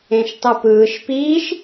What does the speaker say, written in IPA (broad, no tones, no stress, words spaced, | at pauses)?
ẽʃtˤɯpɯːʃ piːʃ